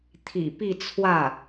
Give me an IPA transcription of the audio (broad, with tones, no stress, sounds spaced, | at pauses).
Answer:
t̪ʰ ḭ˨˩ p i˥˧ t͡sʰ w ä˥˩